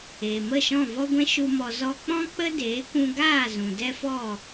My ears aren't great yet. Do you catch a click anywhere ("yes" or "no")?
no